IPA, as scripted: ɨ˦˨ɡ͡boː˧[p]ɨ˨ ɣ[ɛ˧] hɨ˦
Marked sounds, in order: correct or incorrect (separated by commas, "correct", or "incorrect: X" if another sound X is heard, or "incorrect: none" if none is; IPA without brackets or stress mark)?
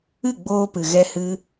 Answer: correct, correct